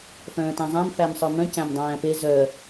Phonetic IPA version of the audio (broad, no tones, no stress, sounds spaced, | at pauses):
f œ̃ː t æ̃ zˤ æ̃ m f æ m sˤ œ m œ̃ c æ̃ m dˤ æ̃ː p e z œ